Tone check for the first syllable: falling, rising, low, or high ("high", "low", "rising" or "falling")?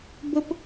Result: high